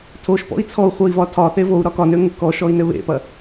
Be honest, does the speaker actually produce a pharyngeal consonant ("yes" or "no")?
no